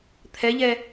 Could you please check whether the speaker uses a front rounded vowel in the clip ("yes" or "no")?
no